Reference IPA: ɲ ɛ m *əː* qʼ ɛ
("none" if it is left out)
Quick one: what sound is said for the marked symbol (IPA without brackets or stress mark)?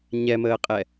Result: əː